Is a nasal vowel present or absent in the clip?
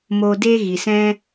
present